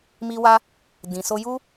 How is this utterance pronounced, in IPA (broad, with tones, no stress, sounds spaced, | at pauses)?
m i˧ w a˧ | d ĩ˨ s o˧ j u˦